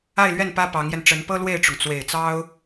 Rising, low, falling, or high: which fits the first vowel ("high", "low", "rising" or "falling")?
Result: falling